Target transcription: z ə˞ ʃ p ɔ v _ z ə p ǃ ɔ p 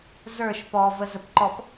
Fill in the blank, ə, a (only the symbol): ə